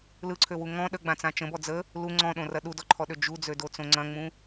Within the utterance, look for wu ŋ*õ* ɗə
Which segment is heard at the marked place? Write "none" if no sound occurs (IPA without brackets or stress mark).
ɔ̃